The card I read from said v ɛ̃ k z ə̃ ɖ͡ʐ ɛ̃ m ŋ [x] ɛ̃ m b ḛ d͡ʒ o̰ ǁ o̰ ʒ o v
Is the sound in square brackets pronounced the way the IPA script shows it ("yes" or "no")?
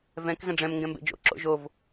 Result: no